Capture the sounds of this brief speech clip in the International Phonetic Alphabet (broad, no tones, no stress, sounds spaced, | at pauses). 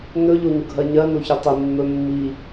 n ɵ ʎ o ɲ ʊ ɡʱ ɜ ɲ ɜ n o ç ɵ tˤ i mː ɵ mː i